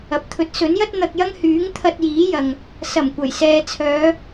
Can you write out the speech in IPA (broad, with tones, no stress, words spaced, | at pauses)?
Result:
ɐ˨p̚t̪ʰɵ˨˥t̚ sɵ˨˥njɐ˥t̚ n̪ɐ˧k̚jɐ˥ŋhyː˨˥ŋ t̪ʰɐ˧t̚jiː˨˥jɐ˨ŋ | sɐ˨˩mkʷɐ˨˩j sɛː˧ t͡sʰœː˨˧